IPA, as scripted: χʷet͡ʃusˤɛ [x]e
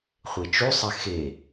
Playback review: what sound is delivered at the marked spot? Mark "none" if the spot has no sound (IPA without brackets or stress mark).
x